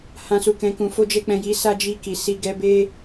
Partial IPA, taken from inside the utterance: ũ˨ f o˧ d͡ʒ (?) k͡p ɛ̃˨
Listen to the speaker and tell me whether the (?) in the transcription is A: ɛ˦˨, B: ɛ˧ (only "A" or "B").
B